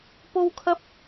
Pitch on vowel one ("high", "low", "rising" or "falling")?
high